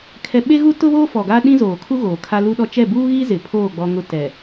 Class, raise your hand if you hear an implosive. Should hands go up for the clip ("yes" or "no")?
yes